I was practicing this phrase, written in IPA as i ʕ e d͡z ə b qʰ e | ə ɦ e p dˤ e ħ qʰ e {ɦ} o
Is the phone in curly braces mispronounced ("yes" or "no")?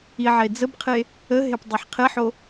yes